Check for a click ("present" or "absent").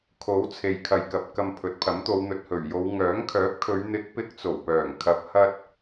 absent